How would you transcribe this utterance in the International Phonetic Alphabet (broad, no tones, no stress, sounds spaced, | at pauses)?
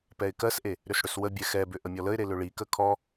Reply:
p ɛ ɪ̯ k ɜ s ʔ e | ɾ ʏ s ɽ ʏ s w ə bʲ ɛ x ɛ b ʏ ʔ ə mʲ ɔ l ə ɪ̯ ɾ e l ʏ ɭ i k ə kʰ ɔ